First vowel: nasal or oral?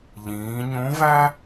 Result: nasal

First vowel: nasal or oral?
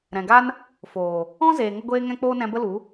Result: nasal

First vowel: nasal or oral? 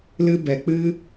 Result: oral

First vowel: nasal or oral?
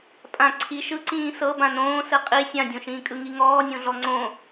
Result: nasal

